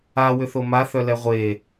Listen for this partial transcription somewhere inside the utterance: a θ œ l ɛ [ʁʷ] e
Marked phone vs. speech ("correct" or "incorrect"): correct